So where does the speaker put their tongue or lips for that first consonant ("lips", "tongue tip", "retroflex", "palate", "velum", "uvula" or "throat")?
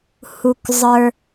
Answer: throat